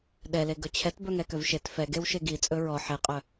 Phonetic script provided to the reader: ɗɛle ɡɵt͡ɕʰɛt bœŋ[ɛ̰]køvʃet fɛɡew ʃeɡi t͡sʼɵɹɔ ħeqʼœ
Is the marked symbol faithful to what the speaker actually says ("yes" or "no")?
no